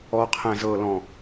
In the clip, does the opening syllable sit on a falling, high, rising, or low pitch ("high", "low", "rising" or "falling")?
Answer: low